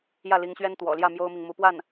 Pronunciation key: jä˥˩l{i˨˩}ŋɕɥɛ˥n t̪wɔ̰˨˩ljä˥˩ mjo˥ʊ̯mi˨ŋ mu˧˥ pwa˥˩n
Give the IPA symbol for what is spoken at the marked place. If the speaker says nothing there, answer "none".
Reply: i˧˥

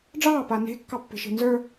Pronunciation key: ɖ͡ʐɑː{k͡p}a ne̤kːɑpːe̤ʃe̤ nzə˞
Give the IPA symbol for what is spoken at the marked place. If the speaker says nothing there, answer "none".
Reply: p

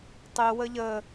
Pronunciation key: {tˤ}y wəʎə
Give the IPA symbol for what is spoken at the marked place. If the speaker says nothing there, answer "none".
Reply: tˤ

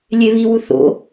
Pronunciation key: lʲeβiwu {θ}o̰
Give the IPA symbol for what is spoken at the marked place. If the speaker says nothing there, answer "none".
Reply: θ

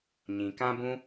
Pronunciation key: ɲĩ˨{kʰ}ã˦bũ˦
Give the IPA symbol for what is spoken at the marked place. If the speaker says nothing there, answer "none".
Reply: k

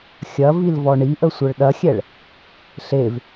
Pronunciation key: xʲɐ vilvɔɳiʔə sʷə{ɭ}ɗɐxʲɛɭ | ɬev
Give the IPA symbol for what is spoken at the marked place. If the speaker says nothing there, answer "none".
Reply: ɭ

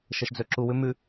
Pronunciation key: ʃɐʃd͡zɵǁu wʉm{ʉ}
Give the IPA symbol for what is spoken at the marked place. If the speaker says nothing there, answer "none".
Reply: ʉ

